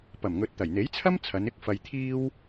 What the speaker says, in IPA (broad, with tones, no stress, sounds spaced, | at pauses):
p ɐ˨˩ m ŋ ɵ˨ t̚ t̪ ɐ˨˩ j n̪ e˨˥ j t͡sʰ ɐ˥ m t͡sʰ ɐ˨˧ n ɪ˥ k̚ f ɐ˧ j t̪ʰ iː˥ w